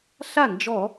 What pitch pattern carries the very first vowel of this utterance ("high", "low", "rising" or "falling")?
falling